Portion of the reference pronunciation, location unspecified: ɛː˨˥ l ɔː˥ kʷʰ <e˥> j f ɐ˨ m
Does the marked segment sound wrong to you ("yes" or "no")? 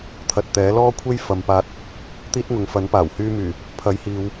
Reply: no